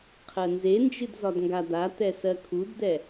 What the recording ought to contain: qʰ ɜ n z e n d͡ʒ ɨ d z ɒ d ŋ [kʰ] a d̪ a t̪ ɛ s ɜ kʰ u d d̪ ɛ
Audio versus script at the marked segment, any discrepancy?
yes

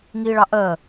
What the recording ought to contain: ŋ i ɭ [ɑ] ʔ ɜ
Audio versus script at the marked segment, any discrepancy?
no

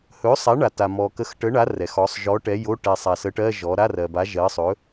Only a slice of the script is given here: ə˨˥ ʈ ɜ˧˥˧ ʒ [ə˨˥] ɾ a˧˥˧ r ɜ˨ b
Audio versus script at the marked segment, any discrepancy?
yes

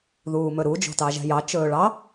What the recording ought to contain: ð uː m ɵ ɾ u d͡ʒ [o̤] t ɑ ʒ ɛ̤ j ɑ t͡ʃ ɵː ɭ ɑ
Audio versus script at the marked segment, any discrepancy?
no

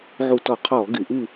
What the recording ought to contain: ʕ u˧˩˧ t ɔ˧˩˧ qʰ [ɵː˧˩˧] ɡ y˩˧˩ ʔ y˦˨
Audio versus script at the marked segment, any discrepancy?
yes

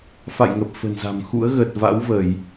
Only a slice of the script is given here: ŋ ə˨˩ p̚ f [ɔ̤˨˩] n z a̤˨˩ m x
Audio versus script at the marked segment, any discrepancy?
yes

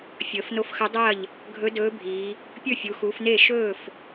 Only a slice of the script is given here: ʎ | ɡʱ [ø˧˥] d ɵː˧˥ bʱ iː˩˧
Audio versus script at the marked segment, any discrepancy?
yes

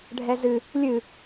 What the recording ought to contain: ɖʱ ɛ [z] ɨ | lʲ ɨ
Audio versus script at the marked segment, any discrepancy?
no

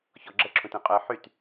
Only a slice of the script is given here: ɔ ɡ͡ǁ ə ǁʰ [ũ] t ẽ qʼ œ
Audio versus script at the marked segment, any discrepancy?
no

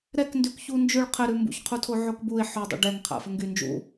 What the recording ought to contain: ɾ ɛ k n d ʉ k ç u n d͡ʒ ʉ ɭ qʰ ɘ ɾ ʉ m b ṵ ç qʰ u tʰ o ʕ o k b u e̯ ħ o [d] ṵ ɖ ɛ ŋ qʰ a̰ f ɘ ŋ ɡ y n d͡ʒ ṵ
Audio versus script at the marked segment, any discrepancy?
yes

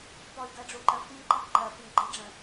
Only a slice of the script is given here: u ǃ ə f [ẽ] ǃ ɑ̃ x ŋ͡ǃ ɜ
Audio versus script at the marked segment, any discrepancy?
yes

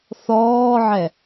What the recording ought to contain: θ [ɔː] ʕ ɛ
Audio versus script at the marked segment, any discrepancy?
no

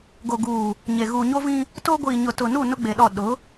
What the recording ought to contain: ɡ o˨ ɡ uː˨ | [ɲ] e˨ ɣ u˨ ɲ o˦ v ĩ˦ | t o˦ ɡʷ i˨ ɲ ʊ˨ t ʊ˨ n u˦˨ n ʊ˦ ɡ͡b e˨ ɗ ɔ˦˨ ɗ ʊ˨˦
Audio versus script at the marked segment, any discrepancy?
no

